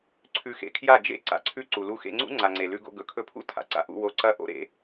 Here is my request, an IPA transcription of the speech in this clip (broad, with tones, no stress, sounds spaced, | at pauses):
ǀʰ ʉ˧ x ḛ˧ kʰ j a˦˨ d͡ʒ ḛ˦ ǀ a̰˦ ǀʰ ʉ˦ ǀ u˨ l u˧ x ḛ˧ ŋ͡ǀ ṵ˦ ŋ͡ǀ a˨ ŋ͡ǀ e˨ l ʉ˧ ɡ o̰˧ ɡ ɵ˨ kʰ ɵ˧ pʰ ṵ˦ tʰ a̰˨ ǀ a̰˦ ʔ ṵ˧ w o˧ ǀ ɐ˧ ʔ o̰˦ ɾ ḛ˧